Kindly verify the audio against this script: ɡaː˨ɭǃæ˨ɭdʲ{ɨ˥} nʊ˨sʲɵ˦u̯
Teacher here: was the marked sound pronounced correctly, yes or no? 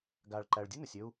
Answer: yes